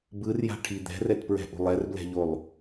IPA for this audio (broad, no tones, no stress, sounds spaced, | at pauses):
b ɯ r j a̤ ʈʰ i d̪ ɛ̤ r ɛ t p ɹ ɛ̤ ʔ ṳ lˠ ɛ r b l ɛ̤ ʎ o lˠ